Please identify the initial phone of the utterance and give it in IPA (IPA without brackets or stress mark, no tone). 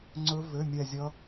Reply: ŋ͡ǀ